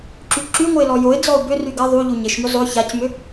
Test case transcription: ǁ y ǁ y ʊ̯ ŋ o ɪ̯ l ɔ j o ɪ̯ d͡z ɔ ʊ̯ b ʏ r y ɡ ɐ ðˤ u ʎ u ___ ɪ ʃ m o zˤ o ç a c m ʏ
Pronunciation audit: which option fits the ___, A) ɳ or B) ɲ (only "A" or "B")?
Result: B